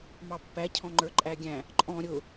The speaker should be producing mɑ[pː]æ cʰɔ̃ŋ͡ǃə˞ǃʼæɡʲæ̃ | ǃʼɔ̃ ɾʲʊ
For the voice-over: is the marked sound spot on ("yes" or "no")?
yes